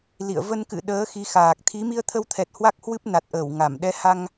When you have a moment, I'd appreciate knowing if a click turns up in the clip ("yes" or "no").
no